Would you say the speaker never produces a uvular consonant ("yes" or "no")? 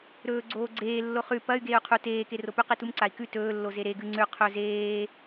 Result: no